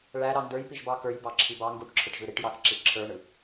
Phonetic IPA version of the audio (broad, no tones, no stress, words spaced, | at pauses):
ɭæɾɑ ndə˞jpiʒbɑ kə˞jbɑǁʰi bɑ ŋɡuʈǁʰɯʈʒɯ ɾiʈjɑθǁi ǁʰə˞ɳɯ